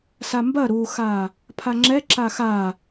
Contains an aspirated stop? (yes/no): yes